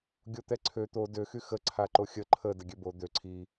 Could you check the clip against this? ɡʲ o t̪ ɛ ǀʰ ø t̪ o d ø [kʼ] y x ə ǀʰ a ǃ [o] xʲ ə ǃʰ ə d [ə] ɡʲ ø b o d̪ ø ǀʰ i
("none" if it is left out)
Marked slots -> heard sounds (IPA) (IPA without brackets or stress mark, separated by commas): x, o, ə